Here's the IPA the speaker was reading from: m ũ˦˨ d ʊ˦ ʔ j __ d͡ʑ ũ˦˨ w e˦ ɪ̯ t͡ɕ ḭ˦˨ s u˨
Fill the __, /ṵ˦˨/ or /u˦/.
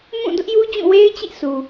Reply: u˦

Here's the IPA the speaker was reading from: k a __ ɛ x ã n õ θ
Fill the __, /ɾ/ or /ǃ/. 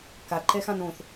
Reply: ǃ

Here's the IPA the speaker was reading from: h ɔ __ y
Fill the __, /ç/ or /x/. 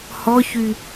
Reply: ç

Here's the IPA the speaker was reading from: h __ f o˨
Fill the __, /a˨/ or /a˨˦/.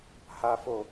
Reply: a˨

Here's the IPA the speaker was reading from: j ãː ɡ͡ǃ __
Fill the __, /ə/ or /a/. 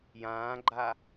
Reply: a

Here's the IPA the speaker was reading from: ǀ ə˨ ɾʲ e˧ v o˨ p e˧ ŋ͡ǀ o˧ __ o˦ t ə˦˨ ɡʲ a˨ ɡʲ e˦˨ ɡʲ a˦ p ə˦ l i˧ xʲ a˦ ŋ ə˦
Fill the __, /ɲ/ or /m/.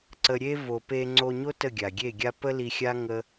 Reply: ɲ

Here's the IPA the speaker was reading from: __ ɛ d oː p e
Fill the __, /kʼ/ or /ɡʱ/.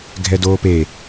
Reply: ɡʱ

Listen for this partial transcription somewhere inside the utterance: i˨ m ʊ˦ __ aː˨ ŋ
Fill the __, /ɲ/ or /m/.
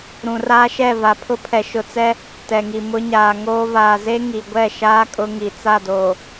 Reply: ɲ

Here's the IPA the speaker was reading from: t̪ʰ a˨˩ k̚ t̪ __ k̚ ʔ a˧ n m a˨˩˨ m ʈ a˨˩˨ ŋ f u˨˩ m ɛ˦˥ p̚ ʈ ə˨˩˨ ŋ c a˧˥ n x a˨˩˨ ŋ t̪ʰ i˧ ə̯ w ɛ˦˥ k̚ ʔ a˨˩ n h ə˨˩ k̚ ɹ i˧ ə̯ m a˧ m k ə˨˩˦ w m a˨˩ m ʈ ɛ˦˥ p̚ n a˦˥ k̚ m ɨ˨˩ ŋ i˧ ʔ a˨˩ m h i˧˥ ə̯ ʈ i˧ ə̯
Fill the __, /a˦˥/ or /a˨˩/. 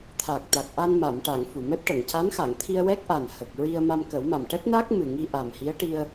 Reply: a˨˩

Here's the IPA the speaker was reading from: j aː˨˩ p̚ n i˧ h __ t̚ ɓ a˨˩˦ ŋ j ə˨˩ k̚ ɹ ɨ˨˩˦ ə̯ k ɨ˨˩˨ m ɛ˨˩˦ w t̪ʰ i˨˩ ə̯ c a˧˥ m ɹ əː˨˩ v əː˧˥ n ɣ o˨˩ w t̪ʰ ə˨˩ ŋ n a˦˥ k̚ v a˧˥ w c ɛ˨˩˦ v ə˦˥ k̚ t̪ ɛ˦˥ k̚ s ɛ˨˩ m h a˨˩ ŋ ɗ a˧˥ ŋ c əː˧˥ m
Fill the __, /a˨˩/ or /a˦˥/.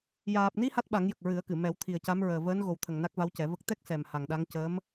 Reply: a˦˥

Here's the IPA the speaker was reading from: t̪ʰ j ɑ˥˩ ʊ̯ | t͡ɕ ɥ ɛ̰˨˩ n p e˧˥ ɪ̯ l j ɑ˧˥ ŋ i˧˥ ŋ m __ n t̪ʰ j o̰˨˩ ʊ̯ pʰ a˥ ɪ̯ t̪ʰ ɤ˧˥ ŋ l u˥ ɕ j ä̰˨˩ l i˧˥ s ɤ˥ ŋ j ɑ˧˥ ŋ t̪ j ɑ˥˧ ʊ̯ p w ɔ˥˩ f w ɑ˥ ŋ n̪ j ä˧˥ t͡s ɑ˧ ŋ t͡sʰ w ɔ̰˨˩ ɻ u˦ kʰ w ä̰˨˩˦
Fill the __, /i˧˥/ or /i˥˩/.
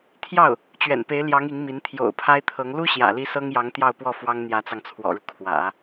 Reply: i˧˥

